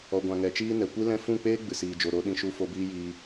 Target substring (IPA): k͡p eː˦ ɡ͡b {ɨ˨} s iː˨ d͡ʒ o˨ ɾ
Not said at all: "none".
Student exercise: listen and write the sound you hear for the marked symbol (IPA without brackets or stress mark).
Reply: ɨ˨